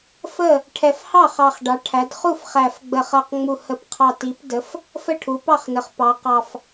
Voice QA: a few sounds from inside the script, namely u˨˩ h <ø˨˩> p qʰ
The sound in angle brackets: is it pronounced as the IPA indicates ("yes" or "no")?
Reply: no